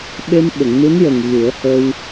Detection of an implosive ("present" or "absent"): present